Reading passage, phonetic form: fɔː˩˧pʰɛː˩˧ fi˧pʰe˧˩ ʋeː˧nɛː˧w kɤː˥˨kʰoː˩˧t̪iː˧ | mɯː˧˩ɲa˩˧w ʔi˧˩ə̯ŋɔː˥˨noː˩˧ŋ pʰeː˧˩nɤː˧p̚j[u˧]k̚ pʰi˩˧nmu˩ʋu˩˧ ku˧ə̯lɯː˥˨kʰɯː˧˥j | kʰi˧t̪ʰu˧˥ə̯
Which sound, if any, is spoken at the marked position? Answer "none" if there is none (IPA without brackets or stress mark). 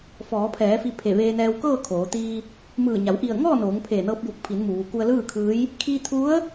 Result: u˧˩